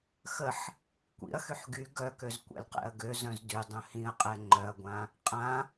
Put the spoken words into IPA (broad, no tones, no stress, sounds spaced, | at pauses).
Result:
x ə ħ | kʷ ḭ ɐ̯ x y ħ ɡ y ɡ œ k ø z kʷ ɛ̰ l q ɛ̰ ɐ̯ ɡ ø z œ̃ z d y dˤ œ̃ h ĩ ɐ̯ qʼ ɛ ŋ͡ǃ œ ɐ̯ ɡʷ ã | qʼ ã